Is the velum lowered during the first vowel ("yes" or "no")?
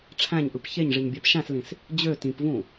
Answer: yes